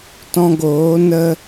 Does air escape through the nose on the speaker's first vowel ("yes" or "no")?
yes